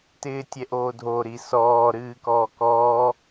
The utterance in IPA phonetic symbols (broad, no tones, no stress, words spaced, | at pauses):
tɪːtʲɛʔoːdʱo ɾisɔː ɾɨːkɔːkɔː